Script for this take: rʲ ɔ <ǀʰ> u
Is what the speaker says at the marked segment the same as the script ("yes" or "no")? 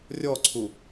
yes